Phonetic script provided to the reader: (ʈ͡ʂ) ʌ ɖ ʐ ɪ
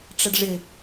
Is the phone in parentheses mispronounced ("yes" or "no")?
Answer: no